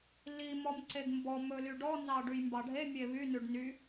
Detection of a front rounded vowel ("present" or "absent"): present